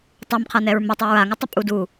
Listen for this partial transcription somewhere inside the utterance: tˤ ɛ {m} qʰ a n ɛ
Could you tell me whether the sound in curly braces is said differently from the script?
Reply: no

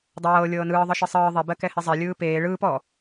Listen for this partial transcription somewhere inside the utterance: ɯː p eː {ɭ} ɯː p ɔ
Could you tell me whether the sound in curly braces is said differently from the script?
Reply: no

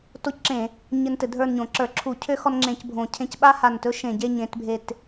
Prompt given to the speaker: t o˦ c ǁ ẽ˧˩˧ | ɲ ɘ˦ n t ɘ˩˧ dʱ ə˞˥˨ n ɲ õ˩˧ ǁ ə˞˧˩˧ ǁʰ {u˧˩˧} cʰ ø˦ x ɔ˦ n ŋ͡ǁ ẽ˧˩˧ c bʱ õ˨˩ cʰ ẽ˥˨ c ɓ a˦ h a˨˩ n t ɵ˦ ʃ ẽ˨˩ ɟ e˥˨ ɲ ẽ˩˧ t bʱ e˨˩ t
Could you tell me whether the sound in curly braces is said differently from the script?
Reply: no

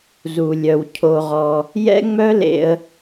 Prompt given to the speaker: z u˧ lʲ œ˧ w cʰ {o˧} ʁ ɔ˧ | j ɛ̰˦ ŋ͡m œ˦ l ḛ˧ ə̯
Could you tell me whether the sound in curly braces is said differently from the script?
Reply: no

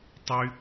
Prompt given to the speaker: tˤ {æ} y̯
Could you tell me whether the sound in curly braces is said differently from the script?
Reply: yes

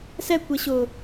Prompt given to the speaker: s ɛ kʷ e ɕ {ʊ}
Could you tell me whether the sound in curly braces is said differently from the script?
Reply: no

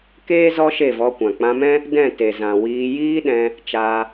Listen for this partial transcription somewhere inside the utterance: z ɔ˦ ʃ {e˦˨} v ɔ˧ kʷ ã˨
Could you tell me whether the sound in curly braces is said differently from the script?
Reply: no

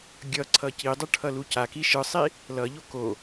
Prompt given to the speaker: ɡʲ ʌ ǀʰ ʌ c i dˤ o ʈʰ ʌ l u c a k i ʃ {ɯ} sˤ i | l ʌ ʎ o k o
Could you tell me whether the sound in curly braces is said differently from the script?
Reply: no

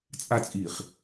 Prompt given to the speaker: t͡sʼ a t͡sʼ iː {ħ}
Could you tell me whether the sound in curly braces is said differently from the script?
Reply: yes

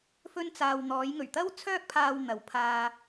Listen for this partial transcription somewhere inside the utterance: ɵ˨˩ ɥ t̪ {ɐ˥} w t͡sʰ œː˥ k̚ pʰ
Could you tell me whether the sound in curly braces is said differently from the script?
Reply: no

